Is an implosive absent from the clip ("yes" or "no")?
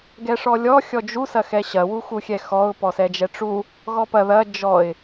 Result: yes